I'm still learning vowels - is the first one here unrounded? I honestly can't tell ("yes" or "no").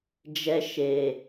yes